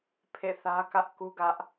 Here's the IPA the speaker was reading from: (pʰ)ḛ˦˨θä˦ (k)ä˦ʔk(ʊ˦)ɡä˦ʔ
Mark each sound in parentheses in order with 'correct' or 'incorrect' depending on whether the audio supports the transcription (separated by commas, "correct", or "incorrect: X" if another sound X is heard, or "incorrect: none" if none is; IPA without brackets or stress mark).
correct, correct, incorrect: u˦